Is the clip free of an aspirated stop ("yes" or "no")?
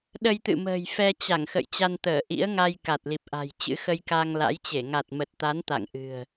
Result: yes